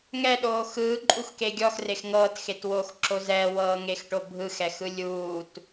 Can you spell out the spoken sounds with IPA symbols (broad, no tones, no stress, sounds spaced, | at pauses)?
ŋ ɛ ɗ oː x ɯː ǃʼ u x k e ɡʲ ɔ x r e x ŋ ɤː t x e t w oː x ǁ o z ɛ w ɤː ŋ e x ʈ o bʱ ɯ x ɛ x ɯ lʲ uː t